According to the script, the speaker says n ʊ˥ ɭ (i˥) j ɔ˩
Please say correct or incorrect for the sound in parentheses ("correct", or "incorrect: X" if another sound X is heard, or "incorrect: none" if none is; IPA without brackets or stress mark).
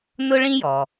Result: incorrect: ĩ˥